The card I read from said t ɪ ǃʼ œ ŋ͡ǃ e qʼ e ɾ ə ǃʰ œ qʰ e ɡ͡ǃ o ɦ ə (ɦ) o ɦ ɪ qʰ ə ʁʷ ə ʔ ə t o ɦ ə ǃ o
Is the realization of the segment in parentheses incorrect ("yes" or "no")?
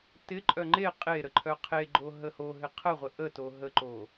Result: yes